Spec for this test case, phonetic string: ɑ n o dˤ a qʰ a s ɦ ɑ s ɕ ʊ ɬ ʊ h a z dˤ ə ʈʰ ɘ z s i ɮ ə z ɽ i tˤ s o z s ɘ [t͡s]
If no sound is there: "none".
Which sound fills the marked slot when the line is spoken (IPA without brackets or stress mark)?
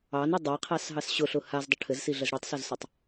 tˤ